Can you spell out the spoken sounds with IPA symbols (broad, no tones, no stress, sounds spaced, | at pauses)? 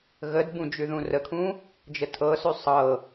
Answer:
ɣ ə d b ũ d͡ʒ ʉ ð ũ r ə kʰ ũ | d͡ʒ ə tʰ ɤ s ʉ sˤ ɤ